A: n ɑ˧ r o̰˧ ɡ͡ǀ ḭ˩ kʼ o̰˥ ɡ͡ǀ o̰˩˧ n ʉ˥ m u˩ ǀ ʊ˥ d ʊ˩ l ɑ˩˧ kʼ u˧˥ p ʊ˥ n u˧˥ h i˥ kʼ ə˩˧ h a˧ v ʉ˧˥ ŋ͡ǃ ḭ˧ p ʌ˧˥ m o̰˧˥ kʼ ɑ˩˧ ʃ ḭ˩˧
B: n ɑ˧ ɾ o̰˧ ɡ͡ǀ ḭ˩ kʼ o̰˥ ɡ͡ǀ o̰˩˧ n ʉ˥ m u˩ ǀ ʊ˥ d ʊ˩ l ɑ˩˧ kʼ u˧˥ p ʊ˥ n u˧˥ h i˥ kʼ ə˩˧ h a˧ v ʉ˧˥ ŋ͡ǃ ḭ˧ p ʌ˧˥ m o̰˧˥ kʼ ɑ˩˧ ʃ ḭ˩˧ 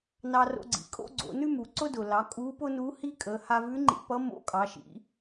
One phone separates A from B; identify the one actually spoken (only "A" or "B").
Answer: A